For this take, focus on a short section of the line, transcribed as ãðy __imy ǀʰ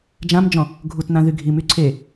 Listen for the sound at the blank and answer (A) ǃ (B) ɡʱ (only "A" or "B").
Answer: B